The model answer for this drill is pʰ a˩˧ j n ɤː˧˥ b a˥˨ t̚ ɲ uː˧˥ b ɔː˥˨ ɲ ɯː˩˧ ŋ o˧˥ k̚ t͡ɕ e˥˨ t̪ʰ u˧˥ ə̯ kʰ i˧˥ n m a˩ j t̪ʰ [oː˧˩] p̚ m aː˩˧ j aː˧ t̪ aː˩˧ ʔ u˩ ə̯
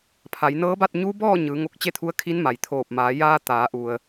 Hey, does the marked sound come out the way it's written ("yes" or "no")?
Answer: yes